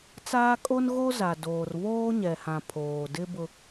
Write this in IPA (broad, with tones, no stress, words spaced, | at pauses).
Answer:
t͡saː˦ kʼo˦n ɣo˦za˨ doː˨rβoː˦ɲɛ˨hã˨ pʰoː˨ dɪ˦ bʊ˦